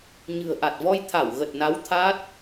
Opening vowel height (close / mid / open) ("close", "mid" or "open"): close